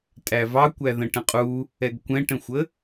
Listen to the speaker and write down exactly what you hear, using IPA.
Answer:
tʼ æ v ɑ kʷ æ ð ə̃ ʈ ə̃ qʼ u | ɛ ɡ kʷ ɛ̃ ʈ ə̃ xʷ ə

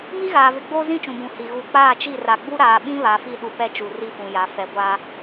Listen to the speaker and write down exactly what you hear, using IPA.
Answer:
m i˦ ɣ aː˨ v ɪ˨ ɡ͡b oː˦ z ĩ˦ t͡ʃ ũ˨ b ũ˨ h i˨ ɣ u˨ k͡p aː˦˨ t͡ʃ i˦˨ r a˨ ɡ͡b u˦ ɾ aː˨ ɓ ĩ˦ β a˨ f i˦˨ ɗ u˨ p ɛ˦ t͡ʃ u˨ r i˦ f ũ˨ j a˨˦ f ɛ˨ ɡʷ a˦

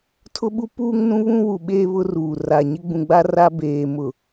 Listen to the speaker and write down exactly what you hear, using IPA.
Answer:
tʰ ʊ˦ ɓ u˦ p uː˦ ŋ n ũ˦ β ũ˦ w u˨ ɓ eː˦ β ʊ˦ r uː˨ r a˨ ɲ ɪ˦ ɡ͡b ũ˨ ɡ͡b a˦ r a˦ b eː˨ m ʊ˨

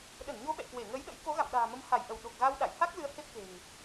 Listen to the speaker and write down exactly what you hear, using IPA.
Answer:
ɗ ə˧˩ n ɲ o˨˦ ɓ ɛ̰˧˨ k w e˧˩ ŋ ə˨˦ j ɗ ə̰˧˥ j k o˨˦ ɣ a̰˧˨ m ɗ a̤ː˨˩ m ə˧ m h a˧˩ j ʔ ə˧˩ w ɗ o˨˩ k̚ ɣ a˧ w ɗ a̰˧˨ j h a˦˥ k̚ l ɨ˧ ə̯ h e˦˥ p̚ k e̤˨˩ ŋ

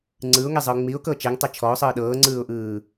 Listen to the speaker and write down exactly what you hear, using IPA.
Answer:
ŋ͡ǀ ɯ ʊ̯ ŋ e zˤ ɯ ʊ̯ ŋ͡m i ʊ̯ k ɤ t͡ʃ e ŋ tˤ e t͡ʃʰ ɔ ʊ̯ sˤ ɯː ɗ ɤː ŋ͡ǀ ɯː ʊ̯ ʔ ɯː

